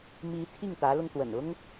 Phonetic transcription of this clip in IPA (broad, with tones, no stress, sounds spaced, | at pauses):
m i˧˥ t̪ʰ i˥˩ ŋ t̪ ä˧˥ l ʊ˧ ŋ t̪ w ə̰˨˩ n ʊ˥ ŋ